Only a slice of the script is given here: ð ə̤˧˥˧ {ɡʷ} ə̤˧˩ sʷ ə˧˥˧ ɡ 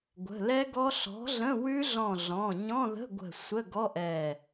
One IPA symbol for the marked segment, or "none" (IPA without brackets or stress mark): ɡʷ